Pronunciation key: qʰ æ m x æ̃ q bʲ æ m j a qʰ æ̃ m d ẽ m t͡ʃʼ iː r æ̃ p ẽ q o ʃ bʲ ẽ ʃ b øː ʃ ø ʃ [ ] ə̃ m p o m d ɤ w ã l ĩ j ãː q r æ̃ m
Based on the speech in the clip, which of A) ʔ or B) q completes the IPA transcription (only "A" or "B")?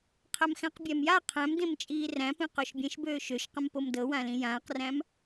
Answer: B